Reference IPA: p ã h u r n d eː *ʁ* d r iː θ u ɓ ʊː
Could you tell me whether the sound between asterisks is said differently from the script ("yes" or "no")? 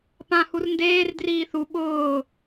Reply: yes